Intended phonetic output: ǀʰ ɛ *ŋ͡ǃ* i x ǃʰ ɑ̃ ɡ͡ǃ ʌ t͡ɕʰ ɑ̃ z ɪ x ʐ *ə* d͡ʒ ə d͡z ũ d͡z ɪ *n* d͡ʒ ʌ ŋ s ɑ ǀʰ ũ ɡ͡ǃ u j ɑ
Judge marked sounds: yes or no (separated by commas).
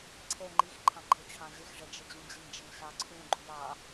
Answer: yes, no, no